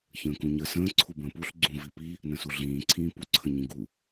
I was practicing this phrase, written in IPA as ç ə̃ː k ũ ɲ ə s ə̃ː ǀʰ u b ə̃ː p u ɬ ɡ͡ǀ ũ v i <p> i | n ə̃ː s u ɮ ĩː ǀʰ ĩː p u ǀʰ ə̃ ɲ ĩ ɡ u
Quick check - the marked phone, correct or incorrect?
correct